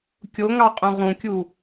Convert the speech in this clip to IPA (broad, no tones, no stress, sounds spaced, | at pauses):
kʲ o ŋ ɑ qʼ ũ ʁ ũ kʲ u